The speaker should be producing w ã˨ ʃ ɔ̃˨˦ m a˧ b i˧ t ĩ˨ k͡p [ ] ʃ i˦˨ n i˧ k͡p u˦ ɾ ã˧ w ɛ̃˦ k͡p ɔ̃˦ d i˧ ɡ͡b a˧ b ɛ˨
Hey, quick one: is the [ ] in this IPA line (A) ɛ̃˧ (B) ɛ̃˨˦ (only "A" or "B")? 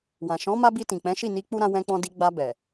B